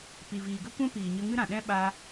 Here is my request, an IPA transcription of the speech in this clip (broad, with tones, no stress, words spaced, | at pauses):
pi˨viː˨ɡə˦ kʷɛ̃˦piː˨ɲə˧ ŋɨ˦ɾã˨ ɗɛ̃˦ ɓa˧